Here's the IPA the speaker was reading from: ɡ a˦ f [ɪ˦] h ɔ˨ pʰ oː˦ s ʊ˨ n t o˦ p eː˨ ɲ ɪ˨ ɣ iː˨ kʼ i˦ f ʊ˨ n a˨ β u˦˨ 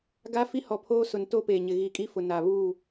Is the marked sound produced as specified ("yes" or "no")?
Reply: no